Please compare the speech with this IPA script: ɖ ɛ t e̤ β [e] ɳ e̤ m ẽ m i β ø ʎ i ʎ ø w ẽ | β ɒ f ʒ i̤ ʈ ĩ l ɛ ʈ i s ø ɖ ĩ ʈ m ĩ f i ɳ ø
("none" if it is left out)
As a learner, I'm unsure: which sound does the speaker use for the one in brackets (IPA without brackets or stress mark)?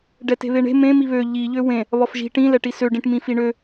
e